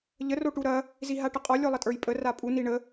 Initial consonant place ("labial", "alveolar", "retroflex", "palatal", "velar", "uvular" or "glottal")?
palatal